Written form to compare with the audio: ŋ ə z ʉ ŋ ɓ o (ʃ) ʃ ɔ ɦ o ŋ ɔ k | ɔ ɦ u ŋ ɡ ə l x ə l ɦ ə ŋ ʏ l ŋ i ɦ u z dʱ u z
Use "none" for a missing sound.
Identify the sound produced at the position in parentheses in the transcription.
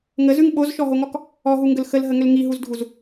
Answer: z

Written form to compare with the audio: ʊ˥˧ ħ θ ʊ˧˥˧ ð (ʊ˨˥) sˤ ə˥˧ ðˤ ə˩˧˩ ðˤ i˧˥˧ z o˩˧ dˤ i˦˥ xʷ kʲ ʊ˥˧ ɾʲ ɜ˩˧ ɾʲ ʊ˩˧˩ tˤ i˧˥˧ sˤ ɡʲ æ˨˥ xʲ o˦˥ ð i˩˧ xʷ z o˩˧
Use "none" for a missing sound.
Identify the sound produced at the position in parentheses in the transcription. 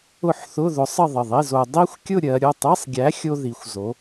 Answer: ʊ˨˥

